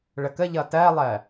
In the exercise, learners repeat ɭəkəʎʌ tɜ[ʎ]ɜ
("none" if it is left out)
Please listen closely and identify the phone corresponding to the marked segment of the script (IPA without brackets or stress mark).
lˠ